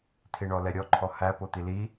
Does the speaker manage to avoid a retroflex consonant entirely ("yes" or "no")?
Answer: no